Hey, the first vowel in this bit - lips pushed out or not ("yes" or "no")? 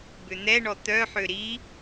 yes